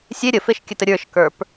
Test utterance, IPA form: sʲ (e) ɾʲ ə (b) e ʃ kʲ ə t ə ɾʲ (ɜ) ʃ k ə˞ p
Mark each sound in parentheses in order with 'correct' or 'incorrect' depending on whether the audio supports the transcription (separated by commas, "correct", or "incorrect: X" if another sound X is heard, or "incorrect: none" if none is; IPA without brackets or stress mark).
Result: correct, incorrect: f, incorrect: ə˞